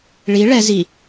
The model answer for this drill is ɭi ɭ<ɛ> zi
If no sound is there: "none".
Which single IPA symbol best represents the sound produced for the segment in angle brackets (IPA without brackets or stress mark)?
ɛ